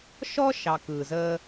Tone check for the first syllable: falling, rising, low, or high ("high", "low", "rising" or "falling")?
high